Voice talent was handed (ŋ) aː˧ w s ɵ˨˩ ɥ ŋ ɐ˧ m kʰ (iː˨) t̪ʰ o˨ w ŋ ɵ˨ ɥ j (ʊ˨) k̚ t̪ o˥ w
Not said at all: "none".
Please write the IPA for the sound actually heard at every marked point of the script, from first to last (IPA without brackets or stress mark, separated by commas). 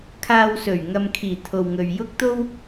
kʰ, iː˨˩, ʊ˥